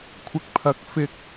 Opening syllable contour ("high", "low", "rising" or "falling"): low